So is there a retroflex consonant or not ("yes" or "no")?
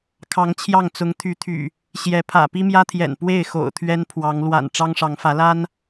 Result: yes